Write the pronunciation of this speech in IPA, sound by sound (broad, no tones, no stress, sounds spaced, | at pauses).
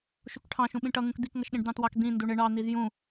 ʃ u k ʈʰ ɑ̃ ʃ ũ ɓ ĩ ʈ ʌ ŋ ũ k d̪ i k ŋ ʌ ʃ ɗ ĩ ɖ d̪ ɑ̃ t w ɑ k d̪ ĩ n d u ɳ ɪ ɳ ɑ n̪ i z j ũ